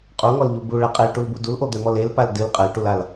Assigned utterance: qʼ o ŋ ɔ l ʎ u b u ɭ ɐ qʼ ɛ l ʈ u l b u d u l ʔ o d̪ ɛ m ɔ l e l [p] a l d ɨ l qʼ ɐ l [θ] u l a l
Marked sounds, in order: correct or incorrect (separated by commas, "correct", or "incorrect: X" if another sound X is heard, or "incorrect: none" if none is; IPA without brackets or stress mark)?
correct, incorrect: ʈ